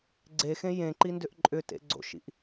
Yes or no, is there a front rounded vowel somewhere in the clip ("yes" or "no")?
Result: yes